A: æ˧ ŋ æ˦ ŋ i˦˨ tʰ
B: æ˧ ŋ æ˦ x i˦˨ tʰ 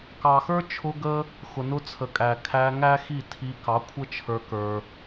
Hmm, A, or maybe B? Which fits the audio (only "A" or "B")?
B